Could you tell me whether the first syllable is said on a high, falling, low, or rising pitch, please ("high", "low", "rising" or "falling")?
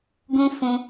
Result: high